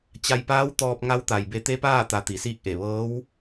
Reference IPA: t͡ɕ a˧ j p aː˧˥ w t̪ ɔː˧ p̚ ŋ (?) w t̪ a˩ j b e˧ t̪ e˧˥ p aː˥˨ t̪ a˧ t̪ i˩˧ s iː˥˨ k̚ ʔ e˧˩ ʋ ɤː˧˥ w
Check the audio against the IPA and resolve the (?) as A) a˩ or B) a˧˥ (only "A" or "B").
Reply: B